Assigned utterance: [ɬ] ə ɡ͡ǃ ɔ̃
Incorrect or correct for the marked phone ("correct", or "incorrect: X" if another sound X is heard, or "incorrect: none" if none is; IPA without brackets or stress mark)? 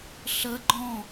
correct